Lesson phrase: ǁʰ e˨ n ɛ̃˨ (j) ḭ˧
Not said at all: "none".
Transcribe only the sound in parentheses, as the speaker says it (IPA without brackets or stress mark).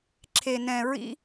ɹ